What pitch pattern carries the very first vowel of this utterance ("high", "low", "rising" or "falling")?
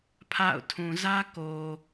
falling